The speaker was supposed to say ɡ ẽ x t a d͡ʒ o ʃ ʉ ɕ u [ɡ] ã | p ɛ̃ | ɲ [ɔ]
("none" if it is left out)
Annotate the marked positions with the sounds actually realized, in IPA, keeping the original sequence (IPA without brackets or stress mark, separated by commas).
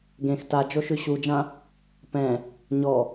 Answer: d͡ʒ, ɔ